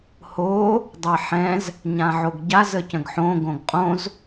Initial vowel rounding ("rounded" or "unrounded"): rounded